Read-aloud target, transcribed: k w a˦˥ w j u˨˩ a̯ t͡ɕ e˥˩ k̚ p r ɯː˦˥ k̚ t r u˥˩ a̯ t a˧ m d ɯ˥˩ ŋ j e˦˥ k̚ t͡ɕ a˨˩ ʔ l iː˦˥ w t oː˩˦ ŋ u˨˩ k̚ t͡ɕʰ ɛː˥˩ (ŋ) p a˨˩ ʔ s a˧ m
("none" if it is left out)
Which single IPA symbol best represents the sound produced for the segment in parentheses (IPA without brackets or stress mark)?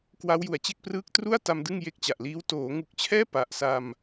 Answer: none